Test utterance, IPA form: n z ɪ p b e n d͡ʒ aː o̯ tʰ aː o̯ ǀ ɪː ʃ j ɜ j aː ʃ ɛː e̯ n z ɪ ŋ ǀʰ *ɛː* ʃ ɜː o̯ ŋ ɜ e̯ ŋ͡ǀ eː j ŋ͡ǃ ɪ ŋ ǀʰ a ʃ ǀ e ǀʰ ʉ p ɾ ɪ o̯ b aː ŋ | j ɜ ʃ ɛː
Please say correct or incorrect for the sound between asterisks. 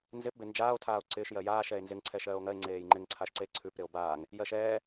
correct